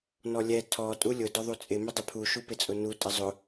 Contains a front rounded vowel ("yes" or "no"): no